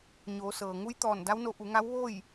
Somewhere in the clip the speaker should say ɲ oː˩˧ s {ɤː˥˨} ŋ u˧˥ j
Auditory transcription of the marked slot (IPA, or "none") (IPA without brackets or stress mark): ɤː˩